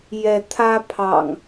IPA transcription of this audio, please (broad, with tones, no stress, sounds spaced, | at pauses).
j ɛ˨˦ t̪ʰ ä˦ pʰ ɑ̰˨˩ ŋ